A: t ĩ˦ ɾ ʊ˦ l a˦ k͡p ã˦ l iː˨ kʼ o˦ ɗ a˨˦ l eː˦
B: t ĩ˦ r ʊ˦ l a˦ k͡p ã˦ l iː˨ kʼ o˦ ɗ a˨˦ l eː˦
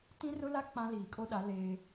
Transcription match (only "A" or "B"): B